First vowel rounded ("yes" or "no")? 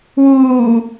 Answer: yes